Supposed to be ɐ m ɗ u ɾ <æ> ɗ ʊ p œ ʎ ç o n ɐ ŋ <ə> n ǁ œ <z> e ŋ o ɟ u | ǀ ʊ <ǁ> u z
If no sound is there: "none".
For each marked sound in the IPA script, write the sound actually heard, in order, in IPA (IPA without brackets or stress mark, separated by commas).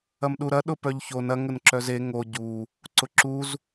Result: ɐ, ə, z, ǁ